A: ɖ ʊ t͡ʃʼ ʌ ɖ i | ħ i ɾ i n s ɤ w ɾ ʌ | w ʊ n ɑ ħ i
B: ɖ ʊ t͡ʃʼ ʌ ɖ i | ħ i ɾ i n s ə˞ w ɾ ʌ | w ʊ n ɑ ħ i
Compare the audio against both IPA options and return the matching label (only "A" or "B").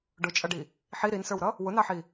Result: B